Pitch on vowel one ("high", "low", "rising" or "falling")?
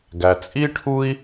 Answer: low